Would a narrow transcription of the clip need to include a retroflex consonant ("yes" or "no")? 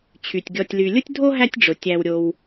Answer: yes